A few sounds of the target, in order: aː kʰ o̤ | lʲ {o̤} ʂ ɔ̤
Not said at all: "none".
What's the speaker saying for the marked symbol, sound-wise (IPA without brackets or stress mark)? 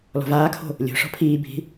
o̤